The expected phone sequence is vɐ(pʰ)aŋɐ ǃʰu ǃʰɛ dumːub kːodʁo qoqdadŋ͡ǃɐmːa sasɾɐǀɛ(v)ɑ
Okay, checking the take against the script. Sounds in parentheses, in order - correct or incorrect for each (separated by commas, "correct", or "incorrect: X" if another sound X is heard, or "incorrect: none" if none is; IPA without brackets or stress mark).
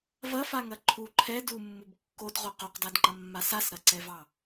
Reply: incorrect: f, correct